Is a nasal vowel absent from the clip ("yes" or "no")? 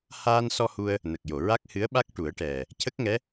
yes